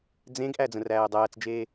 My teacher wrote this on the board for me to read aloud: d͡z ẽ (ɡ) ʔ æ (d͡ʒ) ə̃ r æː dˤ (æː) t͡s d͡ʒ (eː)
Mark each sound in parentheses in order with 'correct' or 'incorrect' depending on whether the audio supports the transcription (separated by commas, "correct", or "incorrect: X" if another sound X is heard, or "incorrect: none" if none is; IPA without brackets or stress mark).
correct, incorrect: d͡z, correct, correct